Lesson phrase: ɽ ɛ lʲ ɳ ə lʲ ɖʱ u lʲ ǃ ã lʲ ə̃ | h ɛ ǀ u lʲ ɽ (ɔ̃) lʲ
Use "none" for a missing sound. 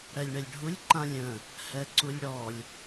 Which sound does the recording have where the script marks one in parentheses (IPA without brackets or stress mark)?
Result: ɔ